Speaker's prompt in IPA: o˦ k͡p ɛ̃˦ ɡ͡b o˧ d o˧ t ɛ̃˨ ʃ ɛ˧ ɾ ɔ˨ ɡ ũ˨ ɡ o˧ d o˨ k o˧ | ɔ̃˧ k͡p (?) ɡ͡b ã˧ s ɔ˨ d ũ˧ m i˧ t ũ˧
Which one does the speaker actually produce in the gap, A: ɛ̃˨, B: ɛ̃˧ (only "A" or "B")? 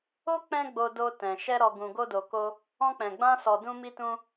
A